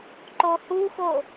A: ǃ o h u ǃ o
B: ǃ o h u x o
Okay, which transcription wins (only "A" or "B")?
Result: B